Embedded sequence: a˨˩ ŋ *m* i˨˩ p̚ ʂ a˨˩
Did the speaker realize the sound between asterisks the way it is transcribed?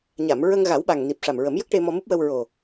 no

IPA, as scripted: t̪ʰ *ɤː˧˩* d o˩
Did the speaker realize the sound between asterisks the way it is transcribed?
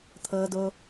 no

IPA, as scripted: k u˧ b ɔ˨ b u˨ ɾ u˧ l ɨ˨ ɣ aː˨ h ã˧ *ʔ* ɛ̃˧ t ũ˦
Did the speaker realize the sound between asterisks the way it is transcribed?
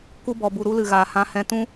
no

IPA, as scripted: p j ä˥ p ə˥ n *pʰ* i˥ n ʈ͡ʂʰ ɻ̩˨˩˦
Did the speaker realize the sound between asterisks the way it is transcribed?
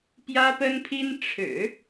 yes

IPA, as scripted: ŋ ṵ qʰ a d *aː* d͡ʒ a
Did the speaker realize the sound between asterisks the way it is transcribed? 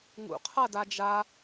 no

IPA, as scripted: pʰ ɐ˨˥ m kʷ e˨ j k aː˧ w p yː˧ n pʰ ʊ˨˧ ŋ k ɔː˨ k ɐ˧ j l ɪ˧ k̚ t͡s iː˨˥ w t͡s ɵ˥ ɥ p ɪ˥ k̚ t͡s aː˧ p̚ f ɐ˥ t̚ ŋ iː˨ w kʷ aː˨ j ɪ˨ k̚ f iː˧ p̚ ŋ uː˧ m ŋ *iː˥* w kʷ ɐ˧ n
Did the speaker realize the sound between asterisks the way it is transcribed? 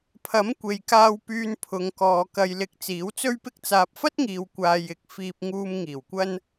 no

